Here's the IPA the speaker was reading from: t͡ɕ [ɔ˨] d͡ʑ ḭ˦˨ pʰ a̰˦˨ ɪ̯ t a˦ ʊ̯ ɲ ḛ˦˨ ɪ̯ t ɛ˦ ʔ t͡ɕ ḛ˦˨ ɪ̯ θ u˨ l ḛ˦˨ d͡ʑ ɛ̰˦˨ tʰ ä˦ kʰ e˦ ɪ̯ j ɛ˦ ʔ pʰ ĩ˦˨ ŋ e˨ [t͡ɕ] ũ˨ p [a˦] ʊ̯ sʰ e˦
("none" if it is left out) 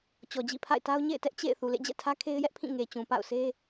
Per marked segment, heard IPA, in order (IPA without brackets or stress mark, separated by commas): ɔ˨, t͡ɕ, a̰˦˨